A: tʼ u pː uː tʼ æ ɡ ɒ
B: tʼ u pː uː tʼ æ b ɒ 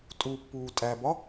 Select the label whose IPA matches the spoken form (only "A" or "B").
B